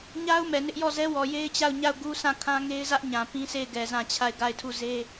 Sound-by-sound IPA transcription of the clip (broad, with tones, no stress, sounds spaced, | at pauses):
ɲ a˦ ʊ̯ m ɛ˨ n ɪ˦ ʔ j ɔ˦˨ z ɛ˦ w ɔ˨ j e˦ ɪ̯ t͡ɕ a˦˨ ʊ̯ ɲ a˦˨ ʊ̯ ɡ u˦ s ã˦˨ kʰ ã˦ ŋ e˦ ɪ̯ z ä˦ ʔ ɲ ã˨ p ĩ˦ s e˦˨ ɪ̯ ɡ ɛ˨ z ã˦˨ t͡ɕʰ a˦˨ ɪ̯ ɡ a˦˨ ɪ̯ tʰ u˦˨ z e˦